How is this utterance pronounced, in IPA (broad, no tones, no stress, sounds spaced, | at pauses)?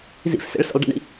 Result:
z ḭ f s ḛ ɭ s ḛ lˠ ɖ ḭ ɳ ḭ